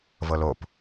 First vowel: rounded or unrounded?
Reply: unrounded